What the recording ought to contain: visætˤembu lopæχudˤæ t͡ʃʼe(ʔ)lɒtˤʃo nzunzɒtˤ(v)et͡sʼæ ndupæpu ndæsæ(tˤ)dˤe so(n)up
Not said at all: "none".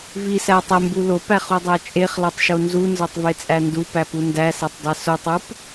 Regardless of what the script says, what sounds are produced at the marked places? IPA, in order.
χ, v, tˤ, tˤ

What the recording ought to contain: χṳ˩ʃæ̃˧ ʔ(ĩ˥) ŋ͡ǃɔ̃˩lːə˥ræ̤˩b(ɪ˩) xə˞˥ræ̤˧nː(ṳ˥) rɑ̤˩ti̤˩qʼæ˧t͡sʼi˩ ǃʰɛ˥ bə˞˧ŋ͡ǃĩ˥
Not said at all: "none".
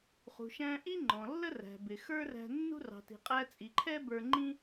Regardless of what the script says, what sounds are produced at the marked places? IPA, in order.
i˥, ɪ˩, ṳ˥

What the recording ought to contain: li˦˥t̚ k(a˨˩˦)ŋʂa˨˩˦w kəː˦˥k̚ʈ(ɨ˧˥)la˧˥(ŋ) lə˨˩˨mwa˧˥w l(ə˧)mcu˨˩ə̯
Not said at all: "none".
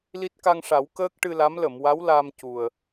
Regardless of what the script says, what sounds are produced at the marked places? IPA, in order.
a˧, ɨ˧, m, a˧

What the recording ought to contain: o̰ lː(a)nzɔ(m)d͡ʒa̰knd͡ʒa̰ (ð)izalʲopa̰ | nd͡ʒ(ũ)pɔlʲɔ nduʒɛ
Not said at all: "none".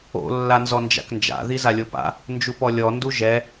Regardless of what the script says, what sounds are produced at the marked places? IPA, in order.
a, n, ð, u

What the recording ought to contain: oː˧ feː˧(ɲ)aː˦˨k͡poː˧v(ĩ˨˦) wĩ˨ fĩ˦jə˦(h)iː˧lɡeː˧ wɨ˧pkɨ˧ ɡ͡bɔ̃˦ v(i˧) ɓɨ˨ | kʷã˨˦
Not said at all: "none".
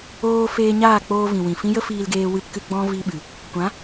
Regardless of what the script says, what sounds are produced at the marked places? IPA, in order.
ɲ, ĩ˨, f, i˧

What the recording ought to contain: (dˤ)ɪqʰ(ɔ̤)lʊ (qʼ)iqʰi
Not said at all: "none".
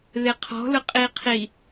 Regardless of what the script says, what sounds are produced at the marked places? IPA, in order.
ð, ɔ̤, qʼ

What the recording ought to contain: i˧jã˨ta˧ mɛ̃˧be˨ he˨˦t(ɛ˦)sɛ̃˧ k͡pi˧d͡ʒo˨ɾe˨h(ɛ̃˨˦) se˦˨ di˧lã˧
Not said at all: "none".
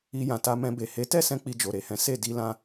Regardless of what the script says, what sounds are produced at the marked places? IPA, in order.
ɛ˦˨, ɛ̃˨˦

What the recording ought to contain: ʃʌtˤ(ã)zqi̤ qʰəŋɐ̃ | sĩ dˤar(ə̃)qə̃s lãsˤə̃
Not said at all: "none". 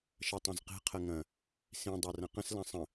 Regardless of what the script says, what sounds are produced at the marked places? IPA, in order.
ɐ̃, ɐ̃

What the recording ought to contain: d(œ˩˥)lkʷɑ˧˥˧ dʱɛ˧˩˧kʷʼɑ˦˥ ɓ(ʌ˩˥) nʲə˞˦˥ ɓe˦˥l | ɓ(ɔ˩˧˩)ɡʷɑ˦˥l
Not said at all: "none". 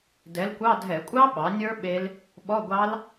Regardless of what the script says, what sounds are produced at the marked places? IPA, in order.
ɛ˩˥, ɑ˩˥, ɔ˧˥˧

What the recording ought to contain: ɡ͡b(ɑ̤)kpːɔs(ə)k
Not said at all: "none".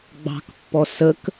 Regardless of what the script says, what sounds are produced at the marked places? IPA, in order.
ɑ̤, ə

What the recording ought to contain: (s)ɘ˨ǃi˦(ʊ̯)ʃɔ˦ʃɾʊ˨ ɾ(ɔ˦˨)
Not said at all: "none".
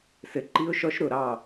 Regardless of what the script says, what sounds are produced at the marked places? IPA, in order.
s, ʊ̯, ɑ˦˨

